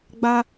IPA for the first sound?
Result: ɡ͡b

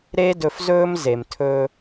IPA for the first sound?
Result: ɾ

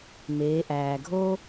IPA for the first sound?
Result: m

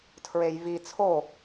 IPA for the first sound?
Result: tʰ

